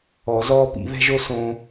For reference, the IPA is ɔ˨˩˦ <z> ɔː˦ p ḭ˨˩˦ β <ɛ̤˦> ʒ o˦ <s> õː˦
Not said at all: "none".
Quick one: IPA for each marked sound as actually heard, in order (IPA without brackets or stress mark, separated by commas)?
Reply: z, ɛ̤˦, s